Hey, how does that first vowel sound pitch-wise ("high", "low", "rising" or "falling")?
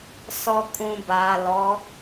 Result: low